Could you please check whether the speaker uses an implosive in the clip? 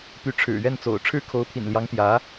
no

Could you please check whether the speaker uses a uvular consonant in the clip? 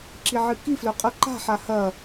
yes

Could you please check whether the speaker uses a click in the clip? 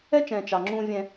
yes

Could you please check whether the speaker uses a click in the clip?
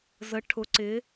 yes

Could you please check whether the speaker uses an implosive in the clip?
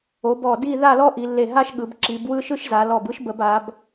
yes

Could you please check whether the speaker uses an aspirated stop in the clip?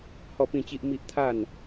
yes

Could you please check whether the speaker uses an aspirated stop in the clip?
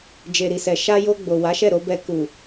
no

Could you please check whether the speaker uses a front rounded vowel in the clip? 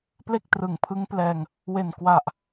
no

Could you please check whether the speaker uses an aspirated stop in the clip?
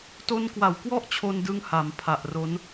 yes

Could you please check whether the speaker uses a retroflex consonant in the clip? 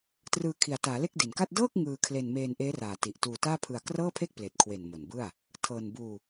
no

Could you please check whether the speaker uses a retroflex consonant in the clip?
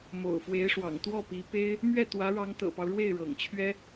yes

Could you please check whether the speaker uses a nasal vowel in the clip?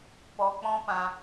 yes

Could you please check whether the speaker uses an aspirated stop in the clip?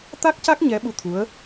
yes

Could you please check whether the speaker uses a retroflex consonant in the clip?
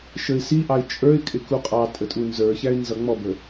no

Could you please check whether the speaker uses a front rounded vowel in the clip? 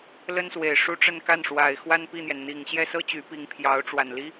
yes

